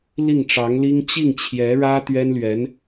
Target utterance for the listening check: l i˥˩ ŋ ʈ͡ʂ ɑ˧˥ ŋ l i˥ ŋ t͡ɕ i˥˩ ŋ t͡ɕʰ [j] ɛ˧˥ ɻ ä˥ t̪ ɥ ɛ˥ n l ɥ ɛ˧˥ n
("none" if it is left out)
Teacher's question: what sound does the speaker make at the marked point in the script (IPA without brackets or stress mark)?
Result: j